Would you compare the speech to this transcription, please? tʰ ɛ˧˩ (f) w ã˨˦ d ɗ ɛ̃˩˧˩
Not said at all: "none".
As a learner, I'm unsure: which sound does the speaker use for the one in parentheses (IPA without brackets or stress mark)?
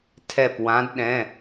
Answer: p